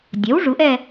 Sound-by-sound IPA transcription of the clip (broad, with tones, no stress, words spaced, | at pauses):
dʲœ˩˥w ʐu˩˥ʔɛ˥˨